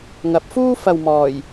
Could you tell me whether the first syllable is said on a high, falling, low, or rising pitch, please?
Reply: rising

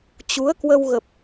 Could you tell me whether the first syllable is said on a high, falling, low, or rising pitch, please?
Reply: rising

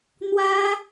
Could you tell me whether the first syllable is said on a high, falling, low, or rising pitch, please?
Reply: high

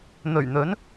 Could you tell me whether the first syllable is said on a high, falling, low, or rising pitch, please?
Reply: low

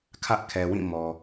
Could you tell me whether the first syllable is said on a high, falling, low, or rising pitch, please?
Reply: high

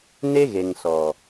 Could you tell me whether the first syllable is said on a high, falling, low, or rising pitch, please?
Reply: high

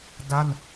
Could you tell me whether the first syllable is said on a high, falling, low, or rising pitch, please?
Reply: falling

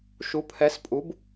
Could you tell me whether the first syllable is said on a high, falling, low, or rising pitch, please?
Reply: rising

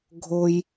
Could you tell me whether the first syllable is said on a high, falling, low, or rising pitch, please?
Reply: high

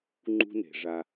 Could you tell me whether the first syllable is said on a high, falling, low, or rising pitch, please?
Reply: high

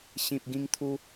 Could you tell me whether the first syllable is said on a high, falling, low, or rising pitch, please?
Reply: low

